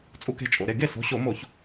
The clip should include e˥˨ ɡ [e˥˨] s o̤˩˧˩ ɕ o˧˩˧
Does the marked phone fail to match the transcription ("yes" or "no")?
no